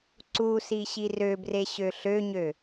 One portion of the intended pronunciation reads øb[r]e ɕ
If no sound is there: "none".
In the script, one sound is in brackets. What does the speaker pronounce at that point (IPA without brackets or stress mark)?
r